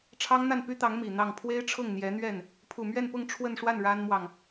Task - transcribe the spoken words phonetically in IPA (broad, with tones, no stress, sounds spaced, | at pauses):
ʈ͡ʂʰ ɑ˥ ŋ n̪ a˥˩ n p y˥ t̪ ɑ˧˥ ŋ m i˨˩ n̪ ɑ˥˩ ŋ pʰ w e˥ ɪ̯ ʈ͡ʂʰ ʊ˥˩ ŋ n̪ j ɛ˧˥ n̪ ɥ ɛ˥˩ n | pʰ u˨˩ m ɥ ɛ˥˧ n p ʊ˥˧ ŋ ʈ͡ʂʰ w ə˥˧ n ʂ w a˥˩ n ɻ a˥ n m w ɑ˨ ŋ